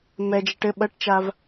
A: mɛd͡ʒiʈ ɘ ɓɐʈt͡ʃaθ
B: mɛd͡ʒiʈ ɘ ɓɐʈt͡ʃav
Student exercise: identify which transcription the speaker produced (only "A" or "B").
B